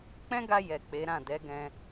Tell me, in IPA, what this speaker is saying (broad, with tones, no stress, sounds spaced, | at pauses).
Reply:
k͡p ɛ̃˦ ɡ a˧ j ɛ˨ k͡p e˨˦ ɾ ã˦˨ d ɛ˨˦ ɡ ɛ̃˧